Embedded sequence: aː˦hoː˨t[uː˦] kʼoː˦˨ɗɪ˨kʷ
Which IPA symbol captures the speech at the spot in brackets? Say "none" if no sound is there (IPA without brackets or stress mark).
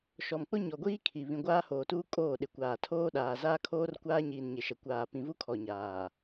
uː˦